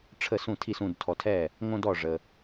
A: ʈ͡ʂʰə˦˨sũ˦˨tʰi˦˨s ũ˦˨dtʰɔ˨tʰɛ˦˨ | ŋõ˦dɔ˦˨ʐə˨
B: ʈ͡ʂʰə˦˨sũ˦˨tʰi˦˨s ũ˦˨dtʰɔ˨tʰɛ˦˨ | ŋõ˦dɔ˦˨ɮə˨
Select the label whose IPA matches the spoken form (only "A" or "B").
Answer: A